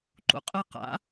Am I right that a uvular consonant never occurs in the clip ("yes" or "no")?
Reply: no